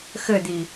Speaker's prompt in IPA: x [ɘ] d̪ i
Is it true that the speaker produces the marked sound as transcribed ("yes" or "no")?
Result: yes